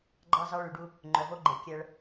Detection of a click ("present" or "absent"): present